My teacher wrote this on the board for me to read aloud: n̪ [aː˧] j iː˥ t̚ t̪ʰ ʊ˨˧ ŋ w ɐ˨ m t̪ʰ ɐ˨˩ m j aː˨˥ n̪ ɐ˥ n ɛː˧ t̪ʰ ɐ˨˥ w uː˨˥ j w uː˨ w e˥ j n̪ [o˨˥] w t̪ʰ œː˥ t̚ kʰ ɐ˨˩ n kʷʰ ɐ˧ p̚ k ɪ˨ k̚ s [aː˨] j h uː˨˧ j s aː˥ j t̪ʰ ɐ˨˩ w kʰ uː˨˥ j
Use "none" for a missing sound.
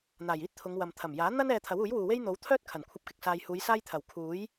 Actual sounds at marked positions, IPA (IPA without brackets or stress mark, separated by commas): aː˨˩, o˨˥, aː˨